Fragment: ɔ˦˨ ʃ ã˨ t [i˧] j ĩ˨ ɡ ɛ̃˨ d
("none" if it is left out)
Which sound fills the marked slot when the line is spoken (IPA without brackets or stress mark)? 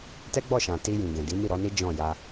i˧